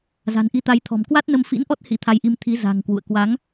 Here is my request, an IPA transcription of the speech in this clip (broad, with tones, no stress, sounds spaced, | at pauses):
z a̤˨˩ n ʔ i˧ t̪ a˨˦ j t̪ʰ ɔ̤˨˩ m k w a˦˥ t̚ n ə˧ m f ḭ˧˥ n ʔ ɔ˦˥ t̚ h ḭ˧˥ t̪ʰ a˧ j ʔ i˧ m t̪ʰ i˨˦ z a̤˨˩ ŋ k w ṵ˧˨ ə̯ k w a˨˦ ŋ